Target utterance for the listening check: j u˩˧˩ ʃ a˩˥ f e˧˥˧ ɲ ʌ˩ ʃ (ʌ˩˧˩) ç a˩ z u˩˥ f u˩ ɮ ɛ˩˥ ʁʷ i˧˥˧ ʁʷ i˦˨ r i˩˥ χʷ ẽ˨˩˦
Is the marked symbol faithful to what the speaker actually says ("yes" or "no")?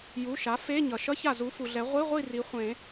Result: no